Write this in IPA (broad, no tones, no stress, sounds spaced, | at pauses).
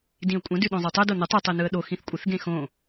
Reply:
d ĩ ə̯ kʷʼ ə̃ d ʉ ɗ õ zˤ o tˤ o d o n ə tˤ ɯ tˤ i n ɯ ə̯ ɗ o x ĩ θ kʷʼ ə θ ɡ ẽ x õ